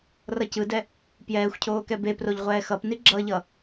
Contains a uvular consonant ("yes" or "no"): yes